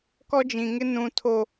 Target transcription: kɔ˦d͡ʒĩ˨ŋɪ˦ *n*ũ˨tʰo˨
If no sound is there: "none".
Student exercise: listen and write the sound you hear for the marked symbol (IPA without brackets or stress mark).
n